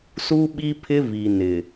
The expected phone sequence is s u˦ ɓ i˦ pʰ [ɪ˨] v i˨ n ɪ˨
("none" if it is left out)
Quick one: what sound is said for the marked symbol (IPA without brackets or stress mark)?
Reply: ɪ˦